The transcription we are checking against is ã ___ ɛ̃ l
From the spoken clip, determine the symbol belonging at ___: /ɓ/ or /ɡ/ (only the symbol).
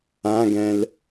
ɡ